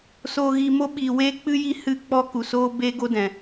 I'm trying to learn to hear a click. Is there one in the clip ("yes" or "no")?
no